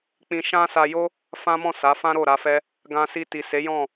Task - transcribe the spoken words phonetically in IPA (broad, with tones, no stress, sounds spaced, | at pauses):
k͡p ĩ˧ ʃ ã˦ s a˧ j o˦ | f ã˦ m ɔ̃˦˨ s a˨˦ f ã˦ ɾ o˦˨ ɾ a˧ f ɛ˦ | ɡ ã˧ s i˧ t i˨ s e˨˦ j ɔ̃˦˨